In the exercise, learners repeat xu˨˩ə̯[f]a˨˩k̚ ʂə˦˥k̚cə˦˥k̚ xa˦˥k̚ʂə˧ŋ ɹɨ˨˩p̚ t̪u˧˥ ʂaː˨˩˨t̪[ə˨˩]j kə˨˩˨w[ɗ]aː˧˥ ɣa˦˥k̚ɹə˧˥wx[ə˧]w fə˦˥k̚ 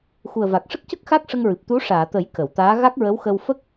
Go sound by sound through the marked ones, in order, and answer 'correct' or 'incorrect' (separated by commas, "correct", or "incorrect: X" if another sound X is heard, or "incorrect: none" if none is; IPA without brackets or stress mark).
incorrect: v, incorrect: ə˨˩˦, incorrect: t̪, correct